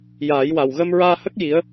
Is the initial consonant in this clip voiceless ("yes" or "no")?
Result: no